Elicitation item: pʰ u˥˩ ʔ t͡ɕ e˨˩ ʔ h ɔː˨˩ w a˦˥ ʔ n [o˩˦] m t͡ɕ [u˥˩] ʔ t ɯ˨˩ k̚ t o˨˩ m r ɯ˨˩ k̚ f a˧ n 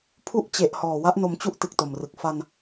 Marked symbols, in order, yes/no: no, yes

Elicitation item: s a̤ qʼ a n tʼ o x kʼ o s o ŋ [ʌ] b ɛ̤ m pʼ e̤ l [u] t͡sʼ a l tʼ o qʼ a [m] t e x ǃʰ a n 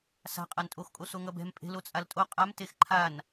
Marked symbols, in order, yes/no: yes, no, yes

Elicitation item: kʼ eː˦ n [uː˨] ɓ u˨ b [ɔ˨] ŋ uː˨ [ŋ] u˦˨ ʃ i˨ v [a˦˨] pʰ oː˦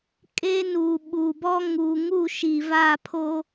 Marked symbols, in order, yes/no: yes, no, yes, yes

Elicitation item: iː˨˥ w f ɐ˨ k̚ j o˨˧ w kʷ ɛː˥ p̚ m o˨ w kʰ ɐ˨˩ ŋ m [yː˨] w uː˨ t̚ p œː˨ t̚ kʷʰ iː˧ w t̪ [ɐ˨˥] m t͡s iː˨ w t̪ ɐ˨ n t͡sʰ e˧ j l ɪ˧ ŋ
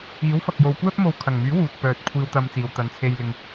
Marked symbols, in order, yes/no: no, no

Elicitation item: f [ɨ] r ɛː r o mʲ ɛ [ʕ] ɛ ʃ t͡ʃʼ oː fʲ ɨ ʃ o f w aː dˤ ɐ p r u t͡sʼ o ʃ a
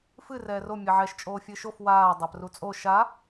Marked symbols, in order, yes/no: yes, yes

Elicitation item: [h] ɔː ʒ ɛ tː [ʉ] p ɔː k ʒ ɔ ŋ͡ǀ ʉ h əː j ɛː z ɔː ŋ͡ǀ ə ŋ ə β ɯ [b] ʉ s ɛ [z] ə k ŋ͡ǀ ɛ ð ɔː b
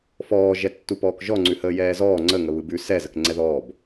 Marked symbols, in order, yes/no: no, no, yes, yes

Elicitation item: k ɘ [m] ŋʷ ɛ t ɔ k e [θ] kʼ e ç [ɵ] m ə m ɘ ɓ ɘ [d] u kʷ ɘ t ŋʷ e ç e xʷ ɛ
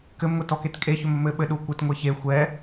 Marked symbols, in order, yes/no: yes, no, yes, no

